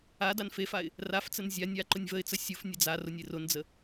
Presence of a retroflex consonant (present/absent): absent